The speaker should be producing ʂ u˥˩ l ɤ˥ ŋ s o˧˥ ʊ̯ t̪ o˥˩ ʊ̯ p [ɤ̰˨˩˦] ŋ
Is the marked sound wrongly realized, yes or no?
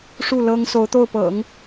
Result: no